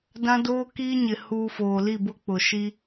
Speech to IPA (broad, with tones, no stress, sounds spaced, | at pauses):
d ã˦ d oː˦ k iː˦ ɲ ɪ˨ h uː˨ f oː˨ l i˦˨ b ʊ˦ k͡p ʊ˨ ʃ i˦